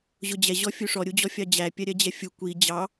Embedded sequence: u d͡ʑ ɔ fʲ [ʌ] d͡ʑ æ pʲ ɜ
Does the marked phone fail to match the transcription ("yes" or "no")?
yes